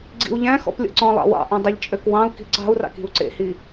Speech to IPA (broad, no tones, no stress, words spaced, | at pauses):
ɡ͡ǀḭu̯ʎæ̃xɔ̰p lʲɔ̰ǀɔ̃lˠɑ̰ wɑ̰ʔœ̃ dˤiʎt͡ʃʼøkwɑ̃u̯ki̤ ǀɑ̤u̯rɑ̰k i̤u̯ǀḛhi